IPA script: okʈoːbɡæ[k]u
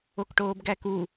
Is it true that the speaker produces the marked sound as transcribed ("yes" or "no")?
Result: yes